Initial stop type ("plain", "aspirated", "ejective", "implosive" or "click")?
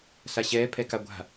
aspirated